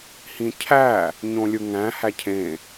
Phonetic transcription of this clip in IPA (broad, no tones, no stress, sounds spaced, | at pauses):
h ĩ cʰ æ | ɲ õ lʲ ɯ ŋ æ̃ h æ cʰ ẽ